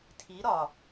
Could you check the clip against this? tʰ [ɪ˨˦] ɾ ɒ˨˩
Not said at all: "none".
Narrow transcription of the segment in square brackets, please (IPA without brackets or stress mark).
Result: i˨˦